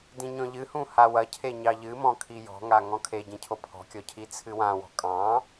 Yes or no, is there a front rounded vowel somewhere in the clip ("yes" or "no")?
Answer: no